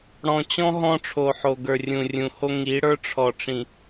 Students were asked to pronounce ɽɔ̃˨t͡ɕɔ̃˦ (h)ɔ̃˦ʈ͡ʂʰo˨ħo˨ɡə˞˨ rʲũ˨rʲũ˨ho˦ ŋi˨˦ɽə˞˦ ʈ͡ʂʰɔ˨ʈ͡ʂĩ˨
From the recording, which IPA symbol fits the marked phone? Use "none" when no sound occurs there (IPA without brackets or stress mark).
ɦ